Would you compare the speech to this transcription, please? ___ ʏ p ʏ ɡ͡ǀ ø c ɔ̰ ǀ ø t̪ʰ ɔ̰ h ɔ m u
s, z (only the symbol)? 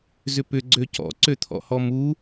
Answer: z